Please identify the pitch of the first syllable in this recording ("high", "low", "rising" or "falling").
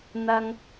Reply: high